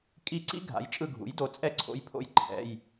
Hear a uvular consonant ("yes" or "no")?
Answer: no